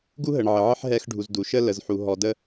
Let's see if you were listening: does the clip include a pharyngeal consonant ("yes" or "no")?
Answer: yes